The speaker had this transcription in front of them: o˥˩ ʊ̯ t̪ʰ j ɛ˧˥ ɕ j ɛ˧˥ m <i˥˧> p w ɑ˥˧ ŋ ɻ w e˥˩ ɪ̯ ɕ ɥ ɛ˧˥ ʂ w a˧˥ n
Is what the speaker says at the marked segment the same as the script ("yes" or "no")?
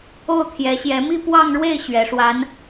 yes